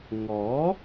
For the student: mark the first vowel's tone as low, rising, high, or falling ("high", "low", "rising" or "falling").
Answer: rising